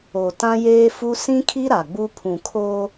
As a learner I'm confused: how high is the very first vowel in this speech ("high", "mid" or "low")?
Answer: mid